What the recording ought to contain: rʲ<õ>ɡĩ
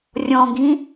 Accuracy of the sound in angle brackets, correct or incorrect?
incorrect